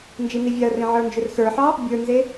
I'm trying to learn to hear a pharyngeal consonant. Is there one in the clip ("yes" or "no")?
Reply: yes